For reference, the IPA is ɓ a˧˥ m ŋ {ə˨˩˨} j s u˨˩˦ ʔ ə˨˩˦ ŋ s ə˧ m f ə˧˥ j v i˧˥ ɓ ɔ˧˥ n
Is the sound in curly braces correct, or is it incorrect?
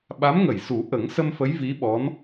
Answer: correct